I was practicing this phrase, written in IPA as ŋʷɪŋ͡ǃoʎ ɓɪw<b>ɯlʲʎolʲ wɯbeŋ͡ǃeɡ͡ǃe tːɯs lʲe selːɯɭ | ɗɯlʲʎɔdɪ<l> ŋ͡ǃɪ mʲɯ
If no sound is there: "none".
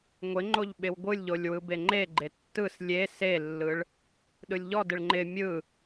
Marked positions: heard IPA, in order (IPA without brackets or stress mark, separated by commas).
ɡʷ, ɭ